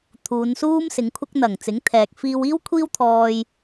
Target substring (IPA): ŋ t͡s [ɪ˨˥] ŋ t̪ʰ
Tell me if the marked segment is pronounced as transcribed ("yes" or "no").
yes